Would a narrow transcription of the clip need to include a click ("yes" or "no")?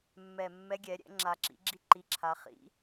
yes